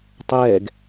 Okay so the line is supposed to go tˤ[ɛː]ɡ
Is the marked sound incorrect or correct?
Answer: correct